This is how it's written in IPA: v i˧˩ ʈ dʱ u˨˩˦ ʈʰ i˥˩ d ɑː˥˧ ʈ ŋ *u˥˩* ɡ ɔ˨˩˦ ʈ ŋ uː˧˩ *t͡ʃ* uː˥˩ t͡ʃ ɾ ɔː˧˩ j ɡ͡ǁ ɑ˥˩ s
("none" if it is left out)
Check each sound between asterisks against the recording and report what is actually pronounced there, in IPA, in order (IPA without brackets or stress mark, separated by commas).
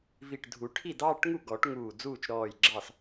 u˥˩, d͡z